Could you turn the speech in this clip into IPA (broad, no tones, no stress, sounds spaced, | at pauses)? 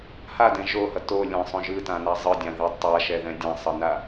h a d ɛ̃ ʒ o h ʌ t o lʲ ɛ̃ sˤ õ ʒ ɯ t ã n a zˤ ɯ dʲ ã ð i tˤ a ʃ ɛ ð ɛ̃ dʲ ã sˤ ʌ n a